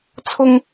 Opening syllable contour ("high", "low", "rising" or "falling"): high